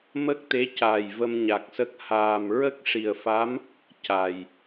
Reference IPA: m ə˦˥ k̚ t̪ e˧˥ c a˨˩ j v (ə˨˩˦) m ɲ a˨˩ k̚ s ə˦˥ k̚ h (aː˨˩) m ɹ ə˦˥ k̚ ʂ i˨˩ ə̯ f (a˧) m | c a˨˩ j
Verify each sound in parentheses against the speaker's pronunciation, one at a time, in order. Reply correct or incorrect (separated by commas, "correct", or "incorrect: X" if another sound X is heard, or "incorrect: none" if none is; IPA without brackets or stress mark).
incorrect: ə˧, correct, incorrect: a˧˥